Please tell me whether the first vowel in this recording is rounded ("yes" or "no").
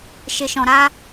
no